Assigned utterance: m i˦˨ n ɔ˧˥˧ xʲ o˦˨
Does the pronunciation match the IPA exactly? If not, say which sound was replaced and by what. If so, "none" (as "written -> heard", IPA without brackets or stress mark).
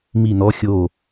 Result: none